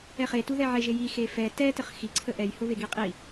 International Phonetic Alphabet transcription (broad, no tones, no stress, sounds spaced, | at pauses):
ɛ χ e t u ð ɛ ʕ e ʒ e j i x e f ɛ t ɛ t ə χ x i ǀʰ ə ʔ ɛ j h ʊ β e ɡ i qʼ i